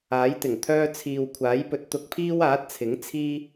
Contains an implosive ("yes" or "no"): no